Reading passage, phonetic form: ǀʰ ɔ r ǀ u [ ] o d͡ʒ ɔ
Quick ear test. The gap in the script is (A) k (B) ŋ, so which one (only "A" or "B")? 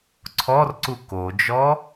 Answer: A